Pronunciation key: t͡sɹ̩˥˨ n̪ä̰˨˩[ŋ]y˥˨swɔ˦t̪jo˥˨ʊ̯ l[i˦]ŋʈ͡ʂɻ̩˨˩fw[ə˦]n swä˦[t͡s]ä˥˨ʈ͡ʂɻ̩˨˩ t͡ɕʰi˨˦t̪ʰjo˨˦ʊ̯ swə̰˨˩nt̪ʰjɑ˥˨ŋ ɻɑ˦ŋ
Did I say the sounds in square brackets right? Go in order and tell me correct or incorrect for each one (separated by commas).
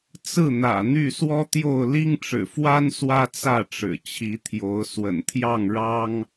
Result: incorrect, correct, incorrect, correct